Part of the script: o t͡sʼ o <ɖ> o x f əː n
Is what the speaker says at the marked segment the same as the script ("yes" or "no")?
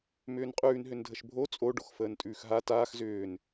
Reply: yes